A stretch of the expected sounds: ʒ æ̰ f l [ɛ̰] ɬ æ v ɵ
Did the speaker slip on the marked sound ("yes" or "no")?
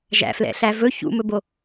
no